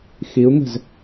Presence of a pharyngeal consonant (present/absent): absent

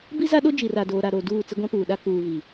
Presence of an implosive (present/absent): present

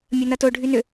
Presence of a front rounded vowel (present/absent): present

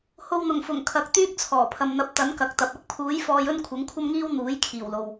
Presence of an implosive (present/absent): absent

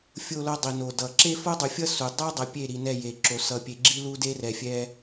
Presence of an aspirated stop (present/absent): absent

